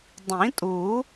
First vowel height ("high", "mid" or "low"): high